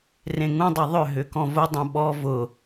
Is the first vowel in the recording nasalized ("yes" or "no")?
yes